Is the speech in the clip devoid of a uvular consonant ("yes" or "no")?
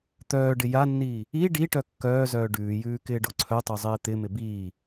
yes